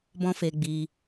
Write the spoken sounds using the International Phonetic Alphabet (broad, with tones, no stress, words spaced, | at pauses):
bɔ̃˦fe˧ɡ͡bi˧